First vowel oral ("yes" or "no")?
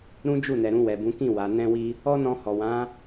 no